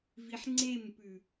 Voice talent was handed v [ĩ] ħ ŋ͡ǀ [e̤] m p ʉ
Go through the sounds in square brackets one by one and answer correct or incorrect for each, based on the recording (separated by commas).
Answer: incorrect, incorrect